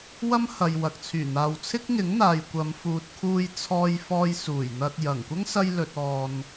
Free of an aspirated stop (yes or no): no